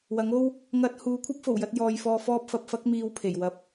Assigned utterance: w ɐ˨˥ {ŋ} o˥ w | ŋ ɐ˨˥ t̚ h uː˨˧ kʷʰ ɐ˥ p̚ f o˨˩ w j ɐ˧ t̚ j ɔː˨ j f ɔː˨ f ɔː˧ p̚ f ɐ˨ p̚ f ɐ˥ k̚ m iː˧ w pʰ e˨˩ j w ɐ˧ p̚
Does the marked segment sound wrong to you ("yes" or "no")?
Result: no